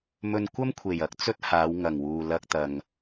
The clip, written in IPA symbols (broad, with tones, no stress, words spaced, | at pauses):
mɵ˧nkʷɐ˥mkʷʰe˨˩j ɐ˨˥k̚t͡sɵ˥t̚ haː˨˧wŋɐ˨˩ŋwuː˨ lɐ˧k̚t̪ɐ˨ŋ